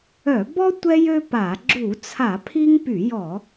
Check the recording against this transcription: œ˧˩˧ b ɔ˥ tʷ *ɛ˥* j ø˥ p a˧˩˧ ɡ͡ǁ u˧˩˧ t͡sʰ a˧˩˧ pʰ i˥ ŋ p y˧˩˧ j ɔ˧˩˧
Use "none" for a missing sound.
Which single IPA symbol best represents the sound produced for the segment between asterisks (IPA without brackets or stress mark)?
ɛ˥